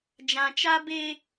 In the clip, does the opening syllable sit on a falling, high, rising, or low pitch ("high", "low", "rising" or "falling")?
low